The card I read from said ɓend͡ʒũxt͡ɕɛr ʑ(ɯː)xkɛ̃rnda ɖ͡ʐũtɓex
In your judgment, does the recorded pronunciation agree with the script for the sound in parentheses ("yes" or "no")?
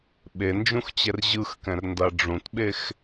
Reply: no